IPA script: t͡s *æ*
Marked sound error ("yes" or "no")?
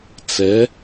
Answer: yes